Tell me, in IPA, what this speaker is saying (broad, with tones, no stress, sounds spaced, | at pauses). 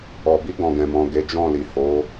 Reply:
ɔ˨ b i˧ ɡ ɔ̃˨ ɡ ɛ̃˨ m ɔ̃˨ ɡ e˨˦ d͡ʒ ɔ̃˦˨ l i˨ h o˨˦